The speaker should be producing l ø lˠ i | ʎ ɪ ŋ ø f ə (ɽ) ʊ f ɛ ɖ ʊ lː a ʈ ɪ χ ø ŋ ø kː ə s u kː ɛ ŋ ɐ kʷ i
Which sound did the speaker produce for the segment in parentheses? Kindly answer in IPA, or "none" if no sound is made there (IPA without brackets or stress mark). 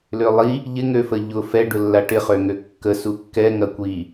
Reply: ʎ